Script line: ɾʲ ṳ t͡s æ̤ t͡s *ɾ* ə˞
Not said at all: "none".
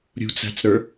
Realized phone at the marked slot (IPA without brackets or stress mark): ɾ